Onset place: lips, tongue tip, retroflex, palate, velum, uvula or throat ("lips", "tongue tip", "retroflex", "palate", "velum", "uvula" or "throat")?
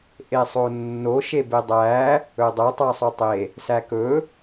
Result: throat